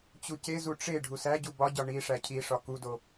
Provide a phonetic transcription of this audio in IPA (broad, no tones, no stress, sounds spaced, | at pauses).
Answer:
t͡ɕ u c e z u ʈ͡ʂ e ɖʱ u s æ ɟ u b ɒ ɟ ɒ ɳ i ʂ æ cʰ i ʂ ɒ k u d o